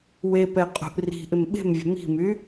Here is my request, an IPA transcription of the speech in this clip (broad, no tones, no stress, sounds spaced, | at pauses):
w e p ɛ qʼ ṳ ʔ r i̤ ʔ ɪ m ɓ e̤ m vʲ ə̤ m i̤ m y